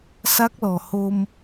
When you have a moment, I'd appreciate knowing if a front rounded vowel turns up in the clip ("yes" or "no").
no